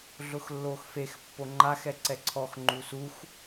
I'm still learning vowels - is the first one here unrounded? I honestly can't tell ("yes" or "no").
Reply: no